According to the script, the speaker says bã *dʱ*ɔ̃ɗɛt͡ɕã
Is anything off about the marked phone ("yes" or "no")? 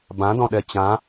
yes